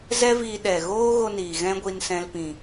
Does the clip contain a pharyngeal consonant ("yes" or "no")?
no